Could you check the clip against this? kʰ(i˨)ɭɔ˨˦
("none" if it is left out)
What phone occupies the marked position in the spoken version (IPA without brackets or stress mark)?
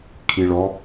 i˨